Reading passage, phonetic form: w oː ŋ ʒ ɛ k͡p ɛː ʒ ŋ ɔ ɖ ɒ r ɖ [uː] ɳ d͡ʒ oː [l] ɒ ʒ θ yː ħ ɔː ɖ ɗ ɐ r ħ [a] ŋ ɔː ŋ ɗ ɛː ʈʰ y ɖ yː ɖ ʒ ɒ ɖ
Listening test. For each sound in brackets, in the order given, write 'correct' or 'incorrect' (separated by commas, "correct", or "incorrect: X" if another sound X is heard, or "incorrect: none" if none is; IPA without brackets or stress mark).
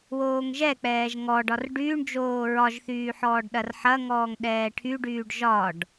incorrect: yː, incorrect: ɹ, incorrect: ɐ